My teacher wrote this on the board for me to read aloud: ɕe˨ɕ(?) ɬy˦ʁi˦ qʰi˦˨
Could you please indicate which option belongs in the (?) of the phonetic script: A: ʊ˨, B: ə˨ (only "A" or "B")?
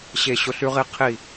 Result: A